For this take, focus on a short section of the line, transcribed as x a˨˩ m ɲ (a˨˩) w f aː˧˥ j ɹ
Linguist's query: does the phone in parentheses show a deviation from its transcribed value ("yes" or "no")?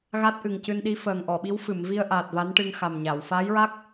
yes